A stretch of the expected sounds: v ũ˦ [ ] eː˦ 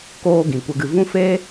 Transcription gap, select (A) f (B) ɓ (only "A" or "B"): A